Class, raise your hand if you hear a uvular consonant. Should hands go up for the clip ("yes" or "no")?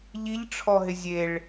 no